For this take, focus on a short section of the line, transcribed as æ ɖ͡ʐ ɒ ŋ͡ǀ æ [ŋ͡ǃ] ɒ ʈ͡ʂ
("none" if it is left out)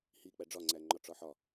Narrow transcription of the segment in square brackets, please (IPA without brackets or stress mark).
ŋ͡ǃ